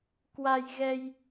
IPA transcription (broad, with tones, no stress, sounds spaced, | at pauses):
k w a˧ j ɣ ɛ˧ j